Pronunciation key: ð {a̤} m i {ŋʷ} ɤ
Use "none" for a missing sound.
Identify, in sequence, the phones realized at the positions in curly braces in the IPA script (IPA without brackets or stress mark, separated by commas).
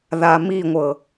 a, ŋʷ